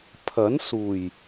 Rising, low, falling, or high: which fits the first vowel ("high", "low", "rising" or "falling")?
rising